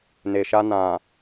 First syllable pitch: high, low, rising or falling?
low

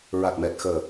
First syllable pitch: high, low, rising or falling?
low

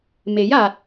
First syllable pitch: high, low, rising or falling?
rising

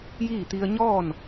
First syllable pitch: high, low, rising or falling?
falling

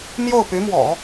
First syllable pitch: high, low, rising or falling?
falling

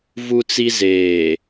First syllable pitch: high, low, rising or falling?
high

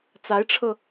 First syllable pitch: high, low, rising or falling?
rising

